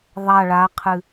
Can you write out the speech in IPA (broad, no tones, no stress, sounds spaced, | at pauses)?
ðˤ a ɭ a qʰ ɨ